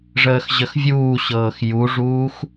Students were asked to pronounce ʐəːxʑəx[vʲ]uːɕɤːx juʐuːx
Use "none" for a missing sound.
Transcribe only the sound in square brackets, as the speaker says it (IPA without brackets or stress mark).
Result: vʲ